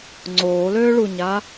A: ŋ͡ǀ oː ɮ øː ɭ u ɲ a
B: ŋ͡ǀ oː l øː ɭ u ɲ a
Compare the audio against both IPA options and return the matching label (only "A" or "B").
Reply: B